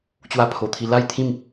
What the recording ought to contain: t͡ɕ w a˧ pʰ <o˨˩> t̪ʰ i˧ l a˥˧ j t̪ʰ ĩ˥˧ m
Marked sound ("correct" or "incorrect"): correct